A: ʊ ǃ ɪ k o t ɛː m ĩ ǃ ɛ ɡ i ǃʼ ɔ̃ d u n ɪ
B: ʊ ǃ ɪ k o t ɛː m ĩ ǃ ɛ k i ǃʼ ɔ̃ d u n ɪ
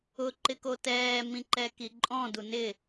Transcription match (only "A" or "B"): B